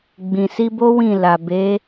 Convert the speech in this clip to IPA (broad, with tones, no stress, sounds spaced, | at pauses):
ɡ͡b ĩ˨ s i˧ b o˦ w ĩ˦˨ l a˨ b e˨˦